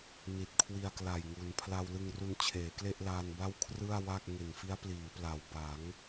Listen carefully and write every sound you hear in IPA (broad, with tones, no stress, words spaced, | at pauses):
ni˨˩t̚kʰwi˧a̯kla˨˩jŋu˩˦n pʰla˧wlɯ˧ŋru˧nt͡ɕʰeː˩˦ kle˥˩ʔlaː˧n ba˥˩wkʰrɯ˥˩a̯wa˥˩k̚ ŋe˨˩nfi˦˥a̯pliː˩˦pla˩˦w ba˩˦ŋ